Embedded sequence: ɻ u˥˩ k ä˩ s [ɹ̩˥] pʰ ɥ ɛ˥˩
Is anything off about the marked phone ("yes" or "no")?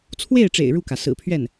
yes